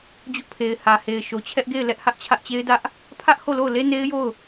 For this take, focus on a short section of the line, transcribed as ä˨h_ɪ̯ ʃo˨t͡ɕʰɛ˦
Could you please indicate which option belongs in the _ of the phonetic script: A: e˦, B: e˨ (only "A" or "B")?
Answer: B